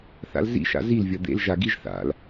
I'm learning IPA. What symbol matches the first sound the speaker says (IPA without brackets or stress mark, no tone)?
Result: θ